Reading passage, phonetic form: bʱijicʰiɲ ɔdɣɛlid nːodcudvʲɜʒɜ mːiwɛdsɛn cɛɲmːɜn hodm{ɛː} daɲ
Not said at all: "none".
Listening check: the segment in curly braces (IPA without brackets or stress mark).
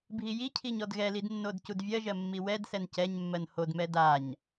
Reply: ɛ